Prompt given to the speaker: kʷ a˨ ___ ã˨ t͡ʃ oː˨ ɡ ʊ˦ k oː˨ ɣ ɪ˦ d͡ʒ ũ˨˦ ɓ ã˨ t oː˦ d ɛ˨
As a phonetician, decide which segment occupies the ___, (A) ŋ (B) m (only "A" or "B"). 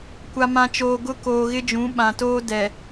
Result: B